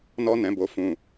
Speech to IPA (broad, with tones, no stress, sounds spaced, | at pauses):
n ɔ˧ n ɛ̃˨ b o˨ f ũ˨